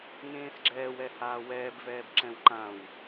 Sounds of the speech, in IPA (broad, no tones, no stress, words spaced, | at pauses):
ŋẽːsɡ͡ǁɛːwɛhaː wɛːbvɛːb ǁɛ̃wǃãw